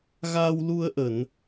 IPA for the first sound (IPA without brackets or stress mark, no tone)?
ɣ